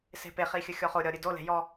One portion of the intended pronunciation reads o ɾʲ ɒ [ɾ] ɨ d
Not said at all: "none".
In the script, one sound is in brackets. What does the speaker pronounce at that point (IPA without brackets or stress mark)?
ɾʲ